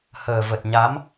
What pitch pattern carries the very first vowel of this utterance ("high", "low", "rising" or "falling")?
low